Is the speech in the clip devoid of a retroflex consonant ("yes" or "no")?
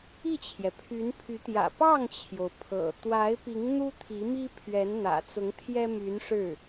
no